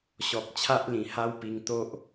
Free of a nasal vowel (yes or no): no